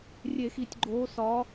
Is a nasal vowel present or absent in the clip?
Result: absent